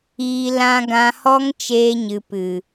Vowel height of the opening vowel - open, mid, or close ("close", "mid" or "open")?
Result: close